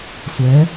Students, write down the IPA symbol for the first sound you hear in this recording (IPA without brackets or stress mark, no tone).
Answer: sʷ